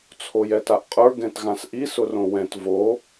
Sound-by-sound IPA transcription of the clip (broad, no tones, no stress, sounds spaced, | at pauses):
t͡sʰ o j ɛ t a ʔ qʼ ə˞ ɡ ɛ̃ t ɣ ã s ʔ i s ʊ r õ w ɛ̃ t v o